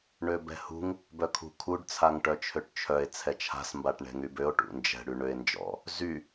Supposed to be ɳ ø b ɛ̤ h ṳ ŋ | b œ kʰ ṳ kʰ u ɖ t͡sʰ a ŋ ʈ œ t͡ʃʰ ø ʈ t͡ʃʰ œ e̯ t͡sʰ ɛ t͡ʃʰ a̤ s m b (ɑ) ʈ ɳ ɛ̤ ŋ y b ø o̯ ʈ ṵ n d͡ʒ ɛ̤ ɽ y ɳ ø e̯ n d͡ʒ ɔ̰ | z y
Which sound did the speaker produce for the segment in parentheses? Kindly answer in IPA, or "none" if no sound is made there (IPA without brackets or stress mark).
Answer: a